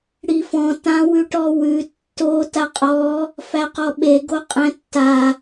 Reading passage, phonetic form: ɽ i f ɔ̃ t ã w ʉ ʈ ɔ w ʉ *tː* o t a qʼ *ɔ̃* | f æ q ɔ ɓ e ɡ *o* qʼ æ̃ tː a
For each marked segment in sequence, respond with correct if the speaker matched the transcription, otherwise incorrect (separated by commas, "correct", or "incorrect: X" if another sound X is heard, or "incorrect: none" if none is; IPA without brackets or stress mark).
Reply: correct, incorrect: ɔ, correct